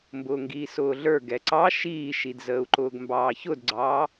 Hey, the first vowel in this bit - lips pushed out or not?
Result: yes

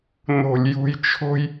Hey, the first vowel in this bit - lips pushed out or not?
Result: yes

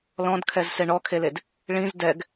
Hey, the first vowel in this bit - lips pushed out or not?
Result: yes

